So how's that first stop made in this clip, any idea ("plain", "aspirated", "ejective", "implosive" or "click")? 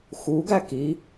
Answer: plain